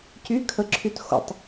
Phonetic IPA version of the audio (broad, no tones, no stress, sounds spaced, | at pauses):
c y kʰ ə ǁʰ y t x o̰ tˤ